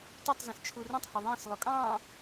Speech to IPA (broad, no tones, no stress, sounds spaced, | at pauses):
t u tˤ z ə̃ s t͡ʃʰ u r ũ tˤ h ʊ ðˤ ɛ̃ s lˠ ʊ kʼ ɑ̃